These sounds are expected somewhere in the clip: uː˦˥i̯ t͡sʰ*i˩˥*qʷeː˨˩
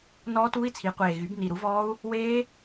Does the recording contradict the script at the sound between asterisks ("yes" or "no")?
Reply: no